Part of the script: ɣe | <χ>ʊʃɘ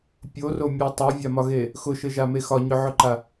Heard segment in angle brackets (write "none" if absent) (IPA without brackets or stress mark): x